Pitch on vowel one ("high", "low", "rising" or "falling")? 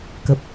low